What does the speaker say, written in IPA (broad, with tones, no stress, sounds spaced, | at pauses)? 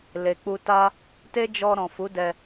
l e˨ k͡p u˧ t a˦ | t e˦ d͡ʒ ɔ˧ ɾ ɔ̃˨ f u˨˦ d ɛ˧